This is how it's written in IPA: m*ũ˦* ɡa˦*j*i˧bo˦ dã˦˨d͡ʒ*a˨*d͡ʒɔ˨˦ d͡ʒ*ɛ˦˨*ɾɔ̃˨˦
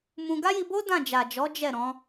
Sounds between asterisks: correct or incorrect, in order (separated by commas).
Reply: incorrect, correct, correct, correct